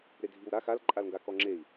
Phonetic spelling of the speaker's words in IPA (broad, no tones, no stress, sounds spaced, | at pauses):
ɾ e dʱ i w ɾ a x a l ǃʼ a l ŋ ɡ a k ɔ ŋ͡ǁ e i̯